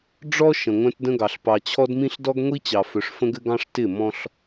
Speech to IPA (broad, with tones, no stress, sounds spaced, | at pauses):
ɖ͡ʐ ɔ˦ ʃ ə̃˨ ŋʷ œ̃˦ t d ə̃˦ ɡ ɑ˨ ɬ p ɑ˨ t͡ɕʰ ɔ˦ d m ĩ˦ ɬ d ɔ˦ ɡ ŋʷ i˦ t͡ɕ ɑ˨ f œ˨ ʂ f ə̃˦ ɡ ɘ˦ ɡ ɑ̃˦ ʂ t ɪ˦˨ m ɔ̃˦ ɬ